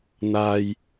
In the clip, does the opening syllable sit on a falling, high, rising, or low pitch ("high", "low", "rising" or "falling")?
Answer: low